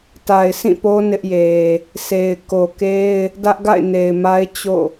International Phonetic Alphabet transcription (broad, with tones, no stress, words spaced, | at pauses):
ta˨ɪ̯sʰĩ˦˨po˦ nɪ˦ʔje˨ | sʰe˨ɪ̯ ko˨ke˦ɪ̯ | dä˦ʔɡa̰˦˨ɪ̯ne˨ɪ̯ma˦ɪ̯ t͡ɕo̰˦˨